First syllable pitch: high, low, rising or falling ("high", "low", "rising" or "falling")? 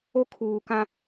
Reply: high